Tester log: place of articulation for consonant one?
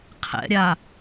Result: uvular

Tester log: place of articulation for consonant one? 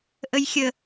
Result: glottal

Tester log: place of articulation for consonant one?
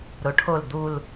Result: alveolar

